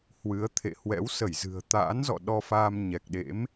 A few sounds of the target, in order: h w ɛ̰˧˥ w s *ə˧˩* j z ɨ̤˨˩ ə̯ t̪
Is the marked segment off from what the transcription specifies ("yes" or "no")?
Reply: no